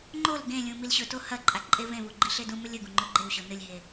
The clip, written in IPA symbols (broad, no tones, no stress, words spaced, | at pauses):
ŋ͡ǃol ɡẽlʲũ milɕɵto hɐ ǃʼaǃʼevẽvu ɡ͡ǃiɬedũmɵlʲ ɵɡũ ŋ͡ǃɵɡ͡ǃewɕo nɨlʲɦe